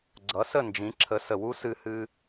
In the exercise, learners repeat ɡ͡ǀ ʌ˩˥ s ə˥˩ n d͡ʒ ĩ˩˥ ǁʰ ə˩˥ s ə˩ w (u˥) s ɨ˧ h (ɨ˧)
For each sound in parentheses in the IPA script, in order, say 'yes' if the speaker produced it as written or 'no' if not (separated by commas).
yes, yes